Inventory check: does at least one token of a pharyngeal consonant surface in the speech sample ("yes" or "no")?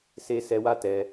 no